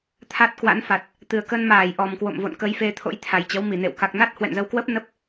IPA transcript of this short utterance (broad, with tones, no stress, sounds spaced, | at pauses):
t̪ʰ a˦˥ t̚ k w a̰˧˥ n f a˨˩ t̚ | t̪ ɨ˨˩ ə̯ k ə˧ n m aː˧˩ j ʔ ɔ˨˩ m k w o̰˧˨ m v o̰˧˨ n k ə˨˦ j f e˧ t̪ʰ o̰˧˥ j t̪ʰ a˨˩ j t͡ɕ ə˨˦ w m i˧˩ n ḛ˧˨ w k a˨˩ k̚ n a˦˥ t̚ h w ɛ̰˧˨ n z ə˧ w k w ə˦˥ p̚ n ə˦˥ p̚